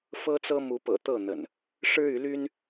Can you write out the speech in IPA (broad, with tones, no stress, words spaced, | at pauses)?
fɤ˦t͡sɤ˦ mu˨˦pɤ̰˨˩ t̪ɤ˥˨n̪ə̰˨˩n | ʂɻ̩˦y˨˦ly˦n